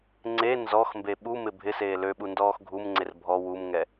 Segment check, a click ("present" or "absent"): present